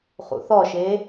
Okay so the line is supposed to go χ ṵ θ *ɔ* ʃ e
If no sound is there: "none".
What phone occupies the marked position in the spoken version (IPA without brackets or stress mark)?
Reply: ɔ